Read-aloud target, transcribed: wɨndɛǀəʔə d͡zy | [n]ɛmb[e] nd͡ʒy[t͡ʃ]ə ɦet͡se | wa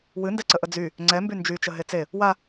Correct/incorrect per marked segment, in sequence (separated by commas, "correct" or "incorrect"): incorrect, incorrect, correct